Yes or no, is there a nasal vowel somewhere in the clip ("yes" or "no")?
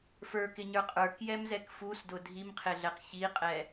no